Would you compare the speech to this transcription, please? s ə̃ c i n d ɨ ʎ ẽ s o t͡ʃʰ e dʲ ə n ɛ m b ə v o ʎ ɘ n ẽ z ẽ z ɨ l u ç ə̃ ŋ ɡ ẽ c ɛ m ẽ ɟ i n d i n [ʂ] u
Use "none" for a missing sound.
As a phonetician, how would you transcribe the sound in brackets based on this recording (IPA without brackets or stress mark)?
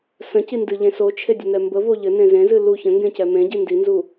z